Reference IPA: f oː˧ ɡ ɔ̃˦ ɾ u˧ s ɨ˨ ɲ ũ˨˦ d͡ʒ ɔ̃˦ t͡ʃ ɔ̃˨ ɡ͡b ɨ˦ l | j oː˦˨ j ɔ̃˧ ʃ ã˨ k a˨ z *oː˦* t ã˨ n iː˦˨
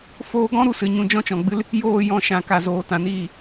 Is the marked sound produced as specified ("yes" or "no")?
no